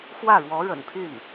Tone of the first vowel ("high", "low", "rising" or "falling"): falling